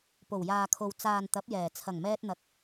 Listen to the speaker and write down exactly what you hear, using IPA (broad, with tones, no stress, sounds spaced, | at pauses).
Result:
p o˨˩ w j aː˨ kʰ o˨ w t͡s aː˨ n t̪ ɐ˨˥ p̚ j ɛː˨˩ t͡sʰ ɐ˨˩ ŋ m ɛː˧ t̚ n̪ ɐ˨˥ k̚